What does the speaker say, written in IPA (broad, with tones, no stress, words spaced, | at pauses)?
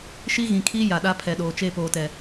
ʃi˦ɣĩ˨kʰiː˦ ja˨ɗa˦pʰɛ˨ ɗoː˨t͡ʃe˦˨poː˨tɛ˨